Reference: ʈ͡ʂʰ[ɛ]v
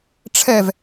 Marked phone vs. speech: correct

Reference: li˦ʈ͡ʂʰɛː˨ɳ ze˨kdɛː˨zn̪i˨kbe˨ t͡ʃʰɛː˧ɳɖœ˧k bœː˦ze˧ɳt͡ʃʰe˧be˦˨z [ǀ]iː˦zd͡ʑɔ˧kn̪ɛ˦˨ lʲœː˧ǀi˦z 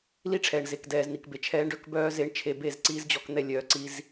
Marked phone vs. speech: correct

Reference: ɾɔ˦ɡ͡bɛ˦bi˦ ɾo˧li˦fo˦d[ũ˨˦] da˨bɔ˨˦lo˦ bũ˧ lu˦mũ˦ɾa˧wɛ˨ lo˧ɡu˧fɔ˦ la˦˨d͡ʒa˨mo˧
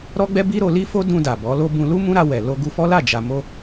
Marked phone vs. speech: incorrect: ũ˧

